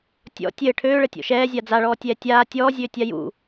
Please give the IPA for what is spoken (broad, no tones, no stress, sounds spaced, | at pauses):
tʲ ɔ̰ tʲ ɘː ʈʰ øː ɭ ɘ tʲ ɔ̰ ʃ ɛː zʲ a d͡z a ɭ ɔː tʲ ɛː tʲ aː tʲ ɔː zʲ øː tʲ a j ṵ